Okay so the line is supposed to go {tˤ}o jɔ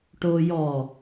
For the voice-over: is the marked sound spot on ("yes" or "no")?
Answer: no